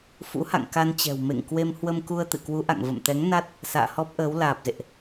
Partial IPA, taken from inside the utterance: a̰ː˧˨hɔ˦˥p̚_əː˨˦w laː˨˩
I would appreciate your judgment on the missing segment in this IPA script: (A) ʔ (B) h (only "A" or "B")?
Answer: A